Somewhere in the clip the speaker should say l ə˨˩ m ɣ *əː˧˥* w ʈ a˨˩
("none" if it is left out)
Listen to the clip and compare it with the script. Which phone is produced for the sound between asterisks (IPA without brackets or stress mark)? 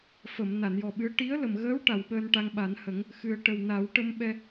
əː˧˥